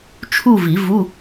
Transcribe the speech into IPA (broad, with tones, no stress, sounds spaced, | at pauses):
t͡ʃʰ u˥˧ v i˨˩˦ v u˧˥˧